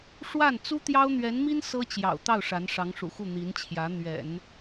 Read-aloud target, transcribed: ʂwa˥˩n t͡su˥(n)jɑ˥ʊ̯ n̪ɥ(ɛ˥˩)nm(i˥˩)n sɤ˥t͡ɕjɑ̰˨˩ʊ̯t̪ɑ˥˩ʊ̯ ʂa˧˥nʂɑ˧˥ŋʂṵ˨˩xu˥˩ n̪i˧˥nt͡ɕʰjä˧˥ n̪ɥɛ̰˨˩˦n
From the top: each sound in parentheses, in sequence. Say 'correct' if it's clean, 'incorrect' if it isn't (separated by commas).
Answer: incorrect, incorrect, incorrect